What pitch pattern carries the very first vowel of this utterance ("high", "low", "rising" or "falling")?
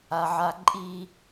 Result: high